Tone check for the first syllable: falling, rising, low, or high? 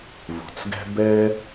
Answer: low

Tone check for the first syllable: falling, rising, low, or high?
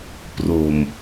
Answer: low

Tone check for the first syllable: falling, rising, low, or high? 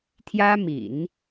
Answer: high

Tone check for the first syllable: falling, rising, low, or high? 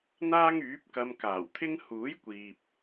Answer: high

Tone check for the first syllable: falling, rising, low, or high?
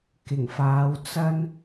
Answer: low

